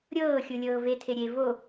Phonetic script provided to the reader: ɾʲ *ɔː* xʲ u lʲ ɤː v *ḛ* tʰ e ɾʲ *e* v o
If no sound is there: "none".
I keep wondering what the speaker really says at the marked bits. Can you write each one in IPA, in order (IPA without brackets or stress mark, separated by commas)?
ɤː, e, e